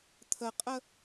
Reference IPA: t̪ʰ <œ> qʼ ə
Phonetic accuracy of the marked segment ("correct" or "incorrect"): incorrect